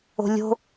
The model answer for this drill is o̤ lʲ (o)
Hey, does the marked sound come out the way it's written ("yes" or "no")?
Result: no